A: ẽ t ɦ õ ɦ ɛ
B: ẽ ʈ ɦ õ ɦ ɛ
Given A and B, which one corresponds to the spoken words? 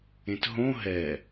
A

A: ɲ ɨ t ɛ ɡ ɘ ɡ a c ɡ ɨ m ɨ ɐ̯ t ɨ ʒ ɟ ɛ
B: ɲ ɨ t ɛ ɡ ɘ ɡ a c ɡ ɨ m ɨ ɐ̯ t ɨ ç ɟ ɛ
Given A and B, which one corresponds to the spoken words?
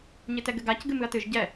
A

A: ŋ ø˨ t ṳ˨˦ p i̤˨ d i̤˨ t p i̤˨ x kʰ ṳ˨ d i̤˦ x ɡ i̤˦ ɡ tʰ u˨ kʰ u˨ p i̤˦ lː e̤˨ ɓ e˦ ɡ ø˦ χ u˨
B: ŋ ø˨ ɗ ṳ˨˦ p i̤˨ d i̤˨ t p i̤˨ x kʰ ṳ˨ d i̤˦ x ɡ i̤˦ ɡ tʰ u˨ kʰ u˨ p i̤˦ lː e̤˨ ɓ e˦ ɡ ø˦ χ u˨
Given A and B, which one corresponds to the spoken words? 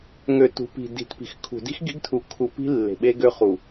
A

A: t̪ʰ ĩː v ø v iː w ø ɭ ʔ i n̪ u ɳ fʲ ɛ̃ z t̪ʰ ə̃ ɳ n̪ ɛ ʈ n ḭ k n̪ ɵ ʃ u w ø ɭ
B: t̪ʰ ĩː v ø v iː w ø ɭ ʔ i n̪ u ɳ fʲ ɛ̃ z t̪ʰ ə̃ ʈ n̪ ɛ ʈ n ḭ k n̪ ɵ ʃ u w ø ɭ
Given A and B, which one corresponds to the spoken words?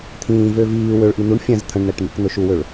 A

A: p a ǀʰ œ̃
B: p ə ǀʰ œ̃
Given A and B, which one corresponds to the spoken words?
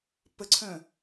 B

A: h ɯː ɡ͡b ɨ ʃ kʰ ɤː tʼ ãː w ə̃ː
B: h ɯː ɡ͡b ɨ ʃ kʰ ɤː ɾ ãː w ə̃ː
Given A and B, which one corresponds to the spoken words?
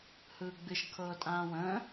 A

